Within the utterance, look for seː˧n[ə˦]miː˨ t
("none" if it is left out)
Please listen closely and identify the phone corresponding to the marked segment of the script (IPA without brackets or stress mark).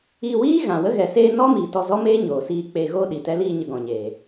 ɔ˦